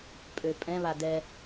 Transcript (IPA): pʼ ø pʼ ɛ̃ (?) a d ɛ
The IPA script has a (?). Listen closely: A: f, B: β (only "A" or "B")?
B